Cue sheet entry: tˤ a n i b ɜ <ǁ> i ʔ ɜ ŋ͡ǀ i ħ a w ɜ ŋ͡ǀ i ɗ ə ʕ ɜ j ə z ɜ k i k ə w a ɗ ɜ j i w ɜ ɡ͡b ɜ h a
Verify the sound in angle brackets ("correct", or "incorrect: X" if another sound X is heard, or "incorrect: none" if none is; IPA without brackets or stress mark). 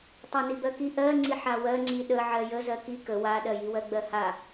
incorrect: k